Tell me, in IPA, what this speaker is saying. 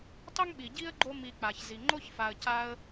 tˤ ʊ˥ ŋ ɓ i˩ ɟ i˥ ə̯ ɡ͡ǃ o˦ m i˨ k͡p a˩ ç z i˩ ŋ͡ǃ o˥ ç f a˨ ə̯ c a˦ ə̯

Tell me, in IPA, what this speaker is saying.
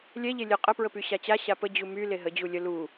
lʲ ɛ ʎ e lʲ ə qʼ ə p ɹ ə p y ɕ a t͡ɕ a ɕ a p ə d͡ʑ u m y l e ɦ ə d͡ʑ u lʲ ə l u

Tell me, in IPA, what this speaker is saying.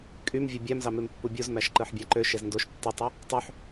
kʼ y m vʲ o bʲ æ m z ɑ m e m pː u bʲ u z m æ ʃ ǃ ɯ ħ bʲ æ ǃ ø ʃ e z n d o ʃ tː ɯ tˤ ɯ | tˤ ø ħ

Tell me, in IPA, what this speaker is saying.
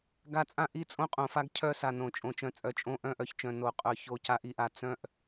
ɡ a˦˨ t͡sʼ ã˦ ʔ i˦ t͡sʼ õ˦ qʼ õ˨ f a˦ ɡ cʰ œ˦ s a˨ n õ˨ t͡ʃʼ õ˨ t͡ʃ œ̃˨ t͡sʼ œ˨ t͡ʃʼ õ˦˨ ʔ œ̃˦˨ ʔ œ˨ ç t͡ʃ œ̃˨ n o˨ qʼ œ˨ ç o˦˨ c a˦ ʔ i˦ ʔ a˨ t͡s œ̃˨ ʔ

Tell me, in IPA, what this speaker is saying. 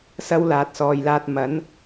s ɐ˥ w l aː˨ t̚ s ɔː˨ j l aː˧ t̚ m ɐ˨˥ n

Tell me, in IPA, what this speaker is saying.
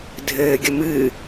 dʱ ɘː ɡʲ ə m ɨ

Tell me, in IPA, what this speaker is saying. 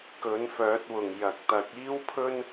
k ɵ˨˥ n f œː˨˥ t̚ w ʊ˨˩ ŋ j ɐ˨˥ k̚ t̪ ɐ˨˥ k̚ iː˥ w pʰ ɵ˥ n

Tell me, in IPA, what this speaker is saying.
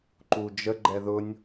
ǃ u d͡ʒ ə ɡ͡ǃ ɛ ð ʊ nʲ

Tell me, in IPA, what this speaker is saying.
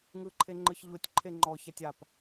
ŋ ɯ ǃʰ e ŋ͡ǃ ɯ ç ʎ o tʲ ǃʰ e ŋ͡ǃ ɔ ç a tʲ a p

